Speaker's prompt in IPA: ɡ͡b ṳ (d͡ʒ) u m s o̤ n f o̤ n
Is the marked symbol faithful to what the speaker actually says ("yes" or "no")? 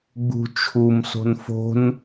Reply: no